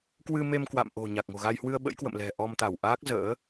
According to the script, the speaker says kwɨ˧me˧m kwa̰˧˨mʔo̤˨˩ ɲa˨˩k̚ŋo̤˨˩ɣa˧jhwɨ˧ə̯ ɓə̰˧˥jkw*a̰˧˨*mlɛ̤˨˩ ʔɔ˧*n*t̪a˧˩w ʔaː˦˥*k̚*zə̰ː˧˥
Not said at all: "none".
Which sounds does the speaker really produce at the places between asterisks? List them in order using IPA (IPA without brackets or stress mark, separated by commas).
ə̰˧˨, m, k̚